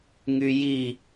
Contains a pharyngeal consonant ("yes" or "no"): no